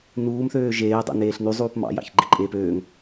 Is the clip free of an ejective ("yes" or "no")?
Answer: no